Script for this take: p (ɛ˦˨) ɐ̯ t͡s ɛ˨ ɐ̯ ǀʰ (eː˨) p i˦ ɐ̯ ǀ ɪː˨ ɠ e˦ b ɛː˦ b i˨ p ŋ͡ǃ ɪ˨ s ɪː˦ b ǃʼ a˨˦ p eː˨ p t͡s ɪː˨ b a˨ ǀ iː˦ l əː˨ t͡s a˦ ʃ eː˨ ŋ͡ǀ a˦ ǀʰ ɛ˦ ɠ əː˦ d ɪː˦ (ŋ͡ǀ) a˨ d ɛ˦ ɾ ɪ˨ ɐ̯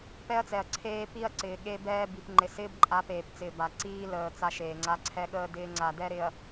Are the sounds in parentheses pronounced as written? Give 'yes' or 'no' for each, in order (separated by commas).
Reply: no, no, yes